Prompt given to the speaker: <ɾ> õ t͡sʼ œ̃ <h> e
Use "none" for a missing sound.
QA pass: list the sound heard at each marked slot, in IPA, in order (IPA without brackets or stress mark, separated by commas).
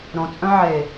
ɾ, ʕ